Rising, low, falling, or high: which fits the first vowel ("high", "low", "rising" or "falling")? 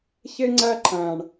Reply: high